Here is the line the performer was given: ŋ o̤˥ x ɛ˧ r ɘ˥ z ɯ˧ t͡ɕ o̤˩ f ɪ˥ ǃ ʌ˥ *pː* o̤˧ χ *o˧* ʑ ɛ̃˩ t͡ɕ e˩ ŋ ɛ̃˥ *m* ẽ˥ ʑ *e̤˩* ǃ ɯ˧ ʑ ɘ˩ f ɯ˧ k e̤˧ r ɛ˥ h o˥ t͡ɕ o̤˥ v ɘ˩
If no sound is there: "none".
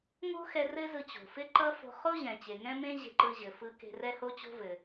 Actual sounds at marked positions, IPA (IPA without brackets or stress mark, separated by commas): f, o˥, m, e̤˧